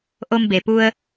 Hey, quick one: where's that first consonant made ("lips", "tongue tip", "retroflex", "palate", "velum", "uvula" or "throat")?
throat